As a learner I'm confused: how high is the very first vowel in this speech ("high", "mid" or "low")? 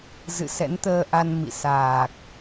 high